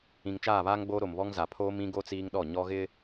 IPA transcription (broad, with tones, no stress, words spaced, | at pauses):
ĩ˨ŋt͡ʃaː˦˨βaː˦ŋɡ͡boː˦ ɾo˨mβɔ˦ŋ za˨pʰoː˦mĩ˦ɡo˦ t͡siː˦ŋɗɔ˦˨ ɲɔ˦ɣɪ˦